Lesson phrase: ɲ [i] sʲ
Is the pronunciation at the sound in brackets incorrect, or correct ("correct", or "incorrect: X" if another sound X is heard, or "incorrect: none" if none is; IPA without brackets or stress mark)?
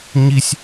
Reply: correct